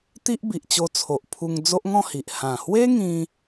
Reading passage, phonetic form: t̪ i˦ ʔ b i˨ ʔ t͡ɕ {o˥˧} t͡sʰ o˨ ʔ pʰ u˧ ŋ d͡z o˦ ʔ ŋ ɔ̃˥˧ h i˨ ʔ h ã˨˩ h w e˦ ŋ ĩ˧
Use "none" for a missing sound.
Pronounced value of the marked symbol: o˧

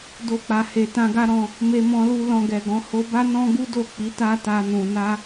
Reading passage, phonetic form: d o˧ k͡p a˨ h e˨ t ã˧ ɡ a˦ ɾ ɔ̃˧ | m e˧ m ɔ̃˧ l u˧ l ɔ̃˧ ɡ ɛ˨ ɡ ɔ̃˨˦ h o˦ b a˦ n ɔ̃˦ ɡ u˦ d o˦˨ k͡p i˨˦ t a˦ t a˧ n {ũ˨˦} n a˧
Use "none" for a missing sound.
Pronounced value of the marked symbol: ũ˨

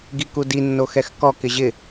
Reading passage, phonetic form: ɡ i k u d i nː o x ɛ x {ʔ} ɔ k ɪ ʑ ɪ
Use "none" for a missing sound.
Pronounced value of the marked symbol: k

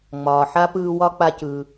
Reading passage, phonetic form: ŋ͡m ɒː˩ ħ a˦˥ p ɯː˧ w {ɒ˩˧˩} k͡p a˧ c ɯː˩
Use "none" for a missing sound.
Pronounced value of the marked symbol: ɒ˦˥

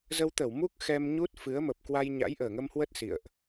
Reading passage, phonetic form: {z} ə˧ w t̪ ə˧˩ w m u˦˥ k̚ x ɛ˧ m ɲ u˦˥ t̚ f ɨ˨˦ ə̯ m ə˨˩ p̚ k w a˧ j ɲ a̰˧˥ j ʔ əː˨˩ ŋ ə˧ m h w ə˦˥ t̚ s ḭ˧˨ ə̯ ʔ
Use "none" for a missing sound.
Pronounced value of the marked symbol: z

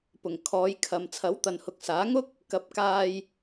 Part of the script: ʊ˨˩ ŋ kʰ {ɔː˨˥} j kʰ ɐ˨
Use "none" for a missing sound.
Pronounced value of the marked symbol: ɔː˨˧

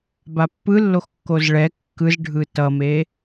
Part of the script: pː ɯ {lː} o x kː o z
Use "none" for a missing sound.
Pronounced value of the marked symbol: lː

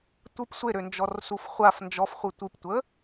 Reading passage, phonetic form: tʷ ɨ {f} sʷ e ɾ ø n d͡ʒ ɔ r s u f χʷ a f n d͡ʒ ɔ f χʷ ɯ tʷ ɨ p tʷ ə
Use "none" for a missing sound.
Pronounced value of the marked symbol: p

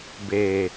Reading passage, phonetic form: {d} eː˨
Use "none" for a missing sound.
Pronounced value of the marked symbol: b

